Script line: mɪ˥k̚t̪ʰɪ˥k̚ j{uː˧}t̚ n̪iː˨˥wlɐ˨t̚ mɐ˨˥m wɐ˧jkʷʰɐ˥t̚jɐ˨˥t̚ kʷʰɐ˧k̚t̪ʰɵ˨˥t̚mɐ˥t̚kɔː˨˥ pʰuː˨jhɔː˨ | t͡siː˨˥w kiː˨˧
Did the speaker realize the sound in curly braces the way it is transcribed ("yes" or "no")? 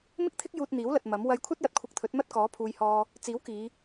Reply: yes